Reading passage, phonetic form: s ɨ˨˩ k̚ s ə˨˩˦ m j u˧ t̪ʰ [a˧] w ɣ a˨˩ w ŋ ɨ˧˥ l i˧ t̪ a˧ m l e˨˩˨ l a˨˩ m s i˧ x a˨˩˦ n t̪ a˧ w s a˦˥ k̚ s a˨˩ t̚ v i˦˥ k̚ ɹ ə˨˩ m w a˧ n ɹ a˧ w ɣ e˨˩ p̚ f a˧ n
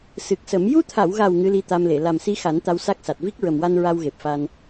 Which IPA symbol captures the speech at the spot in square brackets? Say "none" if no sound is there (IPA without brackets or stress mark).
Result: a˨˩˨